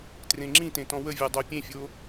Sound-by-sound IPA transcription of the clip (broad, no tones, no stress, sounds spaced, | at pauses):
t r ẽ ŋ͡ǁ ĩ t ẽ t ɔ̃ w ə vʲ ə˞ dˤ o pʲ ẽ fʲ o